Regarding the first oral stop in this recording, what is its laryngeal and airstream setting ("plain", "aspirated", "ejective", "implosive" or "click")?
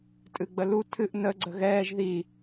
ejective